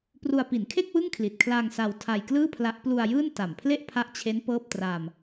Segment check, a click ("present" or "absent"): absent